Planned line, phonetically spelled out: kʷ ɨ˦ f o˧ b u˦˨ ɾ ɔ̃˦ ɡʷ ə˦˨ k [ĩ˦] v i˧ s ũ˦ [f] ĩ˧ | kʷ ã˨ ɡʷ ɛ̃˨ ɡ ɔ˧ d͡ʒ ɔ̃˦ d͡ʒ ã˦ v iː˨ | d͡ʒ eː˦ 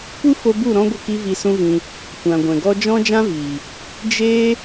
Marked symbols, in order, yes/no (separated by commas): no, no